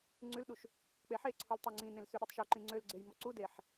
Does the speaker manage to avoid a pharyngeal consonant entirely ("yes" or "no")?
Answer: no